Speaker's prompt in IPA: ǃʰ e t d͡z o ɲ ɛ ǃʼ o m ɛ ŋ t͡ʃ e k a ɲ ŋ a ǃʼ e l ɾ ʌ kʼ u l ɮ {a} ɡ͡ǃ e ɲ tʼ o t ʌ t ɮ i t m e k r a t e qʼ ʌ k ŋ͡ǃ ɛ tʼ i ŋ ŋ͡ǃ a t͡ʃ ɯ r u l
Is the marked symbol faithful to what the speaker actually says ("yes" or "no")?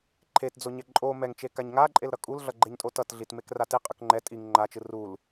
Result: no